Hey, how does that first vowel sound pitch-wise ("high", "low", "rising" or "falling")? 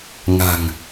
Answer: low